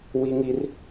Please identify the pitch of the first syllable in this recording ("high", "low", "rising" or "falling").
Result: high